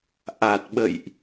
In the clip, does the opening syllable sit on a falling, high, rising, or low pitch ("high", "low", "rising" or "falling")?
low